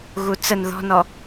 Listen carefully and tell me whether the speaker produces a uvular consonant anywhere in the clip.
no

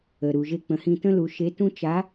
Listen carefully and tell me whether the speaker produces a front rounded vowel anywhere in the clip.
no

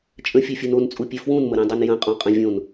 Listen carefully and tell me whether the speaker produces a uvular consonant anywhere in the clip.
yes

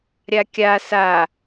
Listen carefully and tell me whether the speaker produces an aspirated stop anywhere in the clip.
no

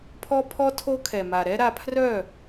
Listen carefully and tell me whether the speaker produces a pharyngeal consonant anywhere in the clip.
no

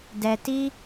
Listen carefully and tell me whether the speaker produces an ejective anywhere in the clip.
no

